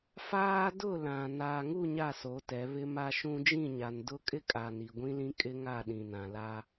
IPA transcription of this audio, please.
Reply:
f aː˦ d ʊ˦˨ l ã˨ n aː˨ ŋ u˦˨ ɲ a˦˨ s o˨˦ t ɛ˨˦ β ɪ˦ m a˦ ʃ ũ˦ d͡ʒ ĩ˦˨ ɲ a˨ n d ʊ˦ kʼ ɪ˦ kʼ a˨ n i˨ ɡʷ ĩ˦ l ĩ˦ kʼ ɪ˦ ŋ a˦˨ ɗ ĩ˨ n ã˨ l a˦

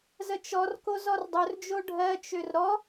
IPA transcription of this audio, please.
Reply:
z ə t͡ʃ ɔ r k o z ɔ r dˤ ɵ r d͡ʒ o ɖʱ ɜ t͡ʃ ø r ɾ ɔ

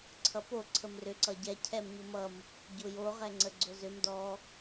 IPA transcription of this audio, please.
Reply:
ǀʰ ʌ p o ǀʰ ə m r ʏ ǀ ʌ ɟ ɛ cʰ ɛ m ɲ ʊ m ʌ m | ɟ ʊ j o ʁ ɛ ŋ͡ǀ ə ɡ͡ǀ ʊ z ʏ m d ɔ

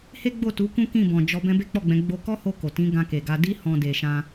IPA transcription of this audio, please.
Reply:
h e˦ ɡ͡b o˦˨ t u˨˦ k ũ˦ k ĩ˦˨ b ɔ̃˨ d͡ʒ ɔ˧ b ɛ̃˦ b e˦ k͡p ɔ˦˨ ɡ͡b ɛ̃˨˦ ɡ͡b o˧ k ɔ˦ h o˧ k o˨ t ĩ˨˦ ɡ ã˧ k e˨ ɡ a˧ d i˦ h ɔ̃˦ d e˧ ʃ ã˦

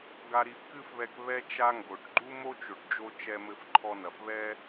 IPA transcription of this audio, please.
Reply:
ɡ a˧ ɾ i˧ f k ɨ˥ f β ɛ˧ k β ɛ˥ t͡ʃ a˥ ŋ ɡ o˩ ʈ ɡ͡ǃ u˥ m o˥ t͡ʃ o˩ ʈ d͡ʒ o˧ t͡ʃ ɛ˧ m ɘ˧ f ǃʰ ɔ˧ n ɐ˩ f β ɛ˥

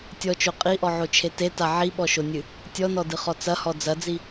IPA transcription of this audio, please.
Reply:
tʲ ɔ t͡ʃ o qʼ i ʔ ɔ ʕ o t͡ʃʰ e t e t a ʕ i ɓ ɔ ʃ o nʲ ɨ | tʲ ɔ n ɔ d ɨ χ ɔ t͡s ɐ h ɔ d͡z ɐ d͡z i

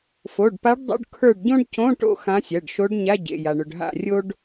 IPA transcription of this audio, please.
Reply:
f o˩˧˩ ɖ p a˧˥ ɖ dˤ o̰˧˥˧ ɖ kʰ ə˞˦˨ ɖ ɟ õ˥ ɖ c õ˧˥˧ ʈ o̰˦˨ x ã˧˥ sʲ ɜ˩˧˩ ɖ ʃ o˧˥ ɖ ɲ a˧˥˧ ɟ ḛ˩˧˩ j a˩ ɳ ɵ˩ ɖ ɦ a̰˦˨ rʲ o˥ ɖ

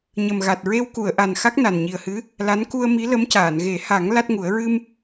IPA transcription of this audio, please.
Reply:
ɲ ə˨˩ m ɣ a˨˩ t̚ ɹ e˧ w k u˨˩˨ ə̯ ʔ a˨˩ n x a˦˥ k̚ n a˨˩ n ɲ i˨˩ ə̯ h ɨ˧˥ | l a˧˥ n k u˧ ə̯ m i˧˥ l ə˧˥ m c aː˨˩˨ n ɣ e˨˩˦ h a˨˩˦ ŋ l a˦˥ t̚ ŋ u˨˩˦ ə̯ ɹ ɨ˧ m

